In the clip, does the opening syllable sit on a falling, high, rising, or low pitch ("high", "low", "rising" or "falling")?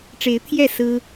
rising